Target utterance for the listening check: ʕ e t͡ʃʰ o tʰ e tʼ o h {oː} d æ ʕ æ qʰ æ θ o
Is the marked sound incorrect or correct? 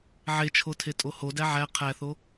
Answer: incorrect